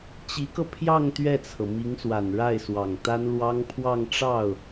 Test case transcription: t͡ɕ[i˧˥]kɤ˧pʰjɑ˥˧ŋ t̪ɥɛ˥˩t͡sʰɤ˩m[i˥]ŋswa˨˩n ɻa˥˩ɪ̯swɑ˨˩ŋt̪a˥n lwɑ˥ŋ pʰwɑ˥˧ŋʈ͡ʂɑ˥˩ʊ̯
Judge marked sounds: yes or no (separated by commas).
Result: yes, no